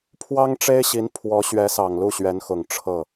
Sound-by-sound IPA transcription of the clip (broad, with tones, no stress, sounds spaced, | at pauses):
pʰ w ɑ˥ ŋ ʈ͡ʂ e˥ ɪ̯ ɕ i˧˥ n pʰ w ɔ˧˥ ɕ ɥ ɛ˧˥ s ɑ˨˩ ŋ l u˥˩ ɕ ɥ ɛ˧˥ n x ʊ˨˩ ŋ ʈ͡ʂʰ ɤ˥˩